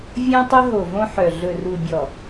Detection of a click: absent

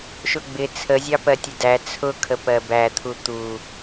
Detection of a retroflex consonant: absent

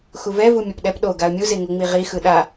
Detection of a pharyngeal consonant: absent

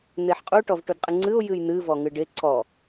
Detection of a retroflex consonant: present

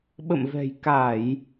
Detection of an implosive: present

